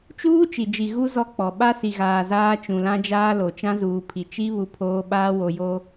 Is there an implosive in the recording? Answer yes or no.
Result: yes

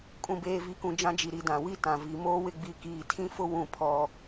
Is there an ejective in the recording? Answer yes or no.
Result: yes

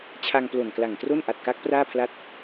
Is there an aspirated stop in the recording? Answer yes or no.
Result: yes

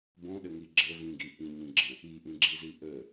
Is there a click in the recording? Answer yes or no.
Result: yes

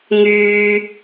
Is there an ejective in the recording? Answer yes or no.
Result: no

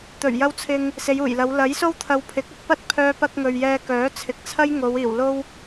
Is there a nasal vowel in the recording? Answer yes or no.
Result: no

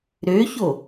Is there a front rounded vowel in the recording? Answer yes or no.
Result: yes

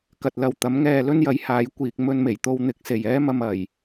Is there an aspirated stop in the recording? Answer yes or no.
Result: no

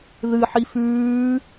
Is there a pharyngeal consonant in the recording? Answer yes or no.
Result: yes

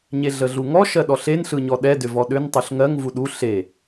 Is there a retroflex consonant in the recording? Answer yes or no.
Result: no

